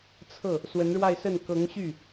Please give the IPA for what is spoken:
t͡sʰ ɤ˥˩ | s w ə˧˥ n ɻ w a˥˧ ɪ̯ s ə˥˩ n k ɤ˧˥ ŋ ɕ y˥˩

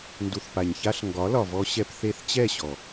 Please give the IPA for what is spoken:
n d u˨ θ p a˨ ɲ ç a˧ ɬ ŋ ɡ ɒ˨˦ l ɒ˨ v ɔ˧ ɕ ɛ˧ p θ e˧ θ t͡ɕ ɛ˦˨ ɕ ɔ˨

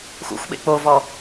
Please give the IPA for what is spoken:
x ṵ xʷ ɓ ḛ k͡p o v ɔ

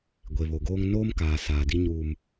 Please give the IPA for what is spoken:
ɡʷ e˨ β o˨ ɡ oː˦ ŋ n oː˦ m k aː˨ s aː˨ d i˦ ɲ uː˨ m

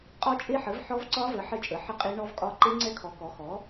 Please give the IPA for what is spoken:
qʼ ɒ˦˥ t͡ʃʼ e˦˥ ħ ə˨˥ v ħ ɔ˦˥ v ǀ ɒ˦˥ v ə˨˥ ħ ə˦˥ t͡ʃʼ ə˨˥ ħ ə˦˥ qʼ e˦˥ ɳ ɔ˦˥ v kʼ ɒ˦˥ ǃ e˦˥ ŋ͡ǀ ɛ˦˥ kʰ ɔ˨˥ k ɔ˨˥ x ɔ˨˥

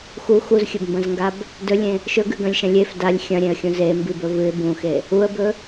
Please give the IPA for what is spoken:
x u x u z xʲ ɵ b m b ɐ̃ z ŋ ɡ a b | d ɵ lʲ ẽ | ʃ ɵ ɡ ʉ ɡ ɐ̃ lʲ ʃ ɐ̃ lʲ e f d a lʲ xʲ ɐ̃ ɾʲ ẽ ə̯ xʲ ũ z e m b i b ɵ v ɨ ɪ̯ b ũ x e | u ə̯ b ɵ

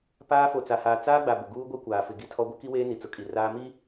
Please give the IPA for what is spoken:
p aː˦ f o˨ t͡s a˨ h aː˨ t͡s aː˦ ɡ͡b a˨ b ʊ˨ ɡ uː˦ ɡʷ ɛ˦ kʷ aː˨ f ɪ˨ ɡ i˦ tʰ ɔ˦ ɡʷ ɛ˦ k i˦ w eː˦ n i˨ t͡s ʊ˨˦ kʼ i˨ r aː˦ m iː˦

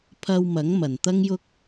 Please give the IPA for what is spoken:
pʰ ɐ˧ w m ɐ˨˥ ŋ m ɐ˨ n t̪ ɐ˥ ŋ j ʊ˥ k̚

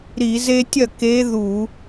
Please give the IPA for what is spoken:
ɾ i˧˩˧ z e˦ tʲ ɐ˥˩ k e˨˦ ð u˧˩˧

